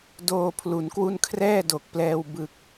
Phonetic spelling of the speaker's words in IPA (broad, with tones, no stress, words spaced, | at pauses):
doː˧pʰlu˩˦nkwu˥˩n kʰrɛː˥˩do˨˩k̚plɛː˧w bɯ˨˩k̚